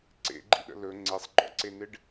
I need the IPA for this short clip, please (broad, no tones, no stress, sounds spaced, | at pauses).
ǀ ḛ ɡ͡ǃ ḭ ɗ ə̰ l ɵ ŋ͡ǀ e sˤ ɡ͡ǃ ɔ̰ ǀ e n ɪ ɖ